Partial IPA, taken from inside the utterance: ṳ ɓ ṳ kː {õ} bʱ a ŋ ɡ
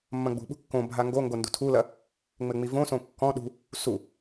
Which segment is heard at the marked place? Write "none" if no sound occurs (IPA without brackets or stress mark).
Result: õ